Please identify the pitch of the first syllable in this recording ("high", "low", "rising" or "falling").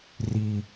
low